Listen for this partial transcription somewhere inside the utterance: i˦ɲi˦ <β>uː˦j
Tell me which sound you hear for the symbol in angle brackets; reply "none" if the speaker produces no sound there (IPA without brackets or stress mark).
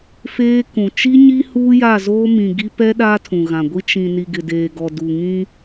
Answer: h